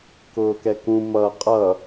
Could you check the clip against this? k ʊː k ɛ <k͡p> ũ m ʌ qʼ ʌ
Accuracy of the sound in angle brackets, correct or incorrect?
incorrect